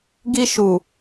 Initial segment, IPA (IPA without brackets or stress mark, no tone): ɡ